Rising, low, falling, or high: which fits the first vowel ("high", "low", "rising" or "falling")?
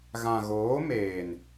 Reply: low